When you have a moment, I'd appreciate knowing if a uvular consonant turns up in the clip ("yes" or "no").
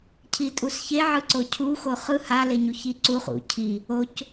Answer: yes